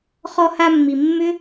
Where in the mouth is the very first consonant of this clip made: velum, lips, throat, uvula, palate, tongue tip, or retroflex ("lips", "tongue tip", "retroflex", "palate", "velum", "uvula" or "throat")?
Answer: uvula